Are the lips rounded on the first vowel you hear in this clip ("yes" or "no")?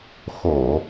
yes